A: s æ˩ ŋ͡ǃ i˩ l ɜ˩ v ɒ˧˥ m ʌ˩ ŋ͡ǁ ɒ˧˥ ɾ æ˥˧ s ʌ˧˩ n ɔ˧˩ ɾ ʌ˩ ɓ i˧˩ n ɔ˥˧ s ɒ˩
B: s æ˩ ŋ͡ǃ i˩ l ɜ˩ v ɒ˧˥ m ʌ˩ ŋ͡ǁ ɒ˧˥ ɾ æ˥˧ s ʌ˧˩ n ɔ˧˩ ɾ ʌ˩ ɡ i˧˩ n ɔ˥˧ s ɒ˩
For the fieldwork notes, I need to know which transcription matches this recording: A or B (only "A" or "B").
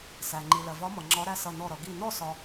B